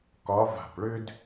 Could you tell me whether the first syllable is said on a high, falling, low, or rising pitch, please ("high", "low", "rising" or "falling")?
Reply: rising